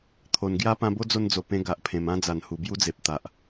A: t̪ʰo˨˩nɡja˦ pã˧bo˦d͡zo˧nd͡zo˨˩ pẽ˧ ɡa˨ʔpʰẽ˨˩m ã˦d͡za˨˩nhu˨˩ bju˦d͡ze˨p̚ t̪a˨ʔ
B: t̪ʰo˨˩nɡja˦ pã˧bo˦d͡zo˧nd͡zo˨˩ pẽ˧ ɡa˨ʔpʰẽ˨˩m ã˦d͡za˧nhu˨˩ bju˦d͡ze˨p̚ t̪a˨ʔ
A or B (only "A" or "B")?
A